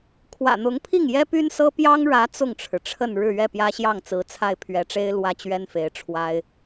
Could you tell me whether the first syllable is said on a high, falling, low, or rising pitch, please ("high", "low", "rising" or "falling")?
low